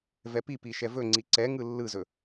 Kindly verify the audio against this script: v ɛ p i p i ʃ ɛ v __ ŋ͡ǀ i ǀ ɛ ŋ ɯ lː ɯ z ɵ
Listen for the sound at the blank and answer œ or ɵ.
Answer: ɵ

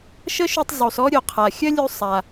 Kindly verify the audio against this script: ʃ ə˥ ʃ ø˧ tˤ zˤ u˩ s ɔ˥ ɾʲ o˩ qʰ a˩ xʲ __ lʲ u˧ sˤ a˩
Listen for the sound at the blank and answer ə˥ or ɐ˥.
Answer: ɐ˥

